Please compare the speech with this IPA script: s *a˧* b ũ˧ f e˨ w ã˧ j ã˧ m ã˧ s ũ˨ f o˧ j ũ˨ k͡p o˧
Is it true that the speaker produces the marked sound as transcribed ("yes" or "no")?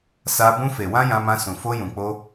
yes